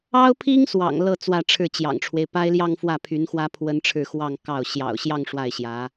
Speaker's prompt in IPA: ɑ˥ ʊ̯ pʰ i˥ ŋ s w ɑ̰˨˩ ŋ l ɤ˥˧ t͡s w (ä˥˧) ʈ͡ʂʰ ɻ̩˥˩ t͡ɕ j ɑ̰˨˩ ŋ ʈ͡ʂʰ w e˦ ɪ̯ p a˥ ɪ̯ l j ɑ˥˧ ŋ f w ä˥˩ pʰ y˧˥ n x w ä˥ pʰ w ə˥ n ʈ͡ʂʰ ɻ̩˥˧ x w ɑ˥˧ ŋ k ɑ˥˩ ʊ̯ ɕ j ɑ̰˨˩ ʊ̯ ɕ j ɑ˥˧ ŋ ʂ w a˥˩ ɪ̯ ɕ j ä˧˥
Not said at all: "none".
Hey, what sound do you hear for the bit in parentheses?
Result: ä˥˧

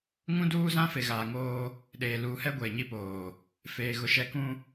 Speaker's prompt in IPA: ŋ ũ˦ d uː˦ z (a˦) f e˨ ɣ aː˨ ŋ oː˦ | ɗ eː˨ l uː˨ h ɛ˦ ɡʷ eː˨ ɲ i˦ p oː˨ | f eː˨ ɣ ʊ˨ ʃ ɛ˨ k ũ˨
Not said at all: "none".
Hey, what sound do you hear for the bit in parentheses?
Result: ã˦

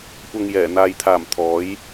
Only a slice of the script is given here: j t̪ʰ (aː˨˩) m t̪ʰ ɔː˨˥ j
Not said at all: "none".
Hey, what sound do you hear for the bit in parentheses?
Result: aː˨˩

